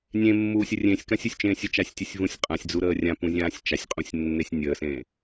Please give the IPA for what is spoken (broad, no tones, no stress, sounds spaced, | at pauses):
nʲ ẽ mː uː sʲ ə rʲ ẽ sʲ k ã sʲ u sʲ t͡ʃ ẽː sʲ ə t͡ʃ a sʲ tʲ ɨ sʲ v ũ sʲ qʼ ã sʲ d͡z u ɾ əː rʲ ã p ũ zʲ ãː sʲ t͡ʃ a sʲ qʼ ũ sʲ nː e sʲ nʲ əː s ẽː